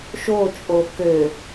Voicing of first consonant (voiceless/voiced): voiceless